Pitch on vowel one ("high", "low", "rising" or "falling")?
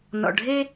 low